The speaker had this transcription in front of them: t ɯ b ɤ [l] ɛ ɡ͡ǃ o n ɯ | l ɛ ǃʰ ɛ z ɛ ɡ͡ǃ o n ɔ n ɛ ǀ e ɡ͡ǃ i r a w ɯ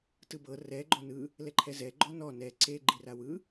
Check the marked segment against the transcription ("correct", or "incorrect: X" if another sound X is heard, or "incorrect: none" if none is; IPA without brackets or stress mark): incorrect: r